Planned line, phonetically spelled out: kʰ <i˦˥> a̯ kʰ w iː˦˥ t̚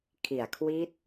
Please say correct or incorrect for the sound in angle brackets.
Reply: incorrect